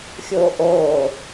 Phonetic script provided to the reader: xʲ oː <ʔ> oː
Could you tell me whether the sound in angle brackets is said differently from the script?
no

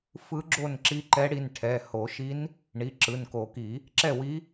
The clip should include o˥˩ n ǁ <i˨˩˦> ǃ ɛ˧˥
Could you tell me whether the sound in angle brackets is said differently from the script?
yes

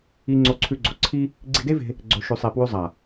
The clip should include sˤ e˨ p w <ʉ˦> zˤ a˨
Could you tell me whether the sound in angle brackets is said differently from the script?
yes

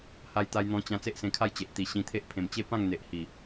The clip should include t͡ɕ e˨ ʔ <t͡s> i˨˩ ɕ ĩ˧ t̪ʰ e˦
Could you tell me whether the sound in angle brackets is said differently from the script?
yes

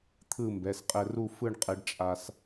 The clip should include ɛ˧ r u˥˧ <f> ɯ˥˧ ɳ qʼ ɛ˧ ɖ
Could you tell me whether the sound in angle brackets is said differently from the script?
no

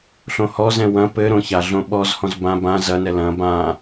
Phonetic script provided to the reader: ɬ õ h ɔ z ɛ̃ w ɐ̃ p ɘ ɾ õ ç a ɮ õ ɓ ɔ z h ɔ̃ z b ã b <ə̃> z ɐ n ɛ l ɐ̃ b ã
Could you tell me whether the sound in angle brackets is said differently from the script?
yes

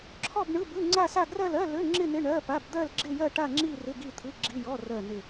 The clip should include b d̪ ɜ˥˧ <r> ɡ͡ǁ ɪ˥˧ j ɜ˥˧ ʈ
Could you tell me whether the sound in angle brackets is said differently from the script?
yes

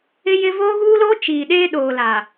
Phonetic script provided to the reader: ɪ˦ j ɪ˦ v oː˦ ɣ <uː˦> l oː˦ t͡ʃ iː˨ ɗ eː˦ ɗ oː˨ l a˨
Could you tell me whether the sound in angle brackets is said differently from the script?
no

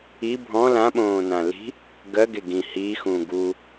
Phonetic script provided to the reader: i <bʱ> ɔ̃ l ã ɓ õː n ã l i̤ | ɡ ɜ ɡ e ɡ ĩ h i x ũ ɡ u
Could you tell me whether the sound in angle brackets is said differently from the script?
no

